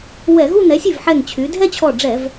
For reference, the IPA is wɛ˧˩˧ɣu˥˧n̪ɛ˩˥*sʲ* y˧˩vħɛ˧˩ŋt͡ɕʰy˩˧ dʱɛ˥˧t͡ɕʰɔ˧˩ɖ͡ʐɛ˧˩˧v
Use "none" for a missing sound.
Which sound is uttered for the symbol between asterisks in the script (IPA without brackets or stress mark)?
sʲ